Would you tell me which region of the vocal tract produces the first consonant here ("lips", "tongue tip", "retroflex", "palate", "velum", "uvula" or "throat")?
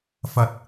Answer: lips